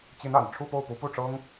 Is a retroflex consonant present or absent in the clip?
present